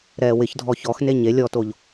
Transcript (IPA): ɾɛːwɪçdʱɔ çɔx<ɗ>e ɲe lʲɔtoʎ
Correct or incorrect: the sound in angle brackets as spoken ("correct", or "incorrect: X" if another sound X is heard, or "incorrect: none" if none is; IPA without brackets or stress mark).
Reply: incorrect: n